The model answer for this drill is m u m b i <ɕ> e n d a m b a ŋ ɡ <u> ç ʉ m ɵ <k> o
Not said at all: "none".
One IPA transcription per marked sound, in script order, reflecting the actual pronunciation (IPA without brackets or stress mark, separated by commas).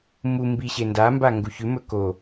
ɕ, u, k